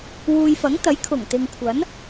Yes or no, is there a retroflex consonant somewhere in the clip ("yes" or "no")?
no